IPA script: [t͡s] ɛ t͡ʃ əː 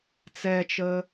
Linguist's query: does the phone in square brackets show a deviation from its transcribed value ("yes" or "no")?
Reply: no